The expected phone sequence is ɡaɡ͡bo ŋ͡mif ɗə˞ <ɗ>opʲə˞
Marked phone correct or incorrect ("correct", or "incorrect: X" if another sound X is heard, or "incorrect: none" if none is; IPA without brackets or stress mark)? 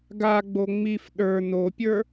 incorrect: n